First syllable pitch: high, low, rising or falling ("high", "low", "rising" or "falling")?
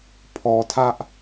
low